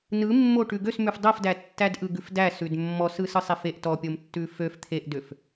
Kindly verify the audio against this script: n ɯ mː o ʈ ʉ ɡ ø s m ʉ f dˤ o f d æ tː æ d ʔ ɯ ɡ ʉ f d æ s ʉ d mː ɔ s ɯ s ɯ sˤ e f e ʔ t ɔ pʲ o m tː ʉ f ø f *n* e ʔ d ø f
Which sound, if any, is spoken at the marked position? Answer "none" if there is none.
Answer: t̪ʰ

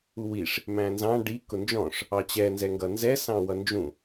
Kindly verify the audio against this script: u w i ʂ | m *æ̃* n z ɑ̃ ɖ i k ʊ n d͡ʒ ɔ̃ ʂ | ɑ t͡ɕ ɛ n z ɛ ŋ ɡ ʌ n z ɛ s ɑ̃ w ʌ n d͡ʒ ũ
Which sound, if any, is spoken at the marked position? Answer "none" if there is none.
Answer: æ̃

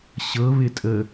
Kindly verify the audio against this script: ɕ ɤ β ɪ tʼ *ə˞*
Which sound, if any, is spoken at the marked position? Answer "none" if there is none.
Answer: ə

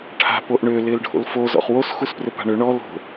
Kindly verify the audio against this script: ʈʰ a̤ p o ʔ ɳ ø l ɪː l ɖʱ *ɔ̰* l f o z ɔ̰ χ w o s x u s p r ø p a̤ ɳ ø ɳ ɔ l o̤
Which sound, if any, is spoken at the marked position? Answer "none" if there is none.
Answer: o̰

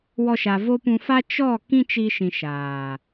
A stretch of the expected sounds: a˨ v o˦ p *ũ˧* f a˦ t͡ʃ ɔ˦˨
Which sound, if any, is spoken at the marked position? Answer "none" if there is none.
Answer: ũ˧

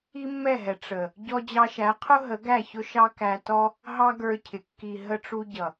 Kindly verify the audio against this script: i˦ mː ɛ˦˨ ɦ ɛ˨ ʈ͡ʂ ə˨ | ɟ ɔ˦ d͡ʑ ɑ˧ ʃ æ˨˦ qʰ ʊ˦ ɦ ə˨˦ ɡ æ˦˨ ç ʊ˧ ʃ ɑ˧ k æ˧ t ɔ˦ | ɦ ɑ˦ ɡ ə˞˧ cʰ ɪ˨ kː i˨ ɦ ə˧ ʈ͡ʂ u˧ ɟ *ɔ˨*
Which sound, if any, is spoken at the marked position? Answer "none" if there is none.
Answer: ʌ˨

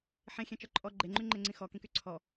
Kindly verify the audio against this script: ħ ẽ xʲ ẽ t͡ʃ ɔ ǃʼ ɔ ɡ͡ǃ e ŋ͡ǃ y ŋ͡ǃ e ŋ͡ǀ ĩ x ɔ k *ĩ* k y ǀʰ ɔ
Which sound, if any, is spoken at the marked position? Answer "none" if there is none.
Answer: ĩ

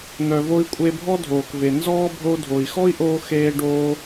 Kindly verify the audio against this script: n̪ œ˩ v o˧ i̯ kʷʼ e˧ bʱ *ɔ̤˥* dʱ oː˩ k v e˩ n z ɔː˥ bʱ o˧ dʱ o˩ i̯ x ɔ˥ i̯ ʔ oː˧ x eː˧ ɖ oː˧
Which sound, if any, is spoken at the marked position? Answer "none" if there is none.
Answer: ɔ˥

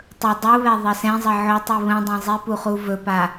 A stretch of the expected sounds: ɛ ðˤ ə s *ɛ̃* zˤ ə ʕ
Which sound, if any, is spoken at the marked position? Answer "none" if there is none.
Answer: ɛ̃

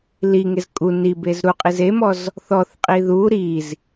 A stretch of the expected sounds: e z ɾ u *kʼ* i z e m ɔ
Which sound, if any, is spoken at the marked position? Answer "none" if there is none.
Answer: qʼ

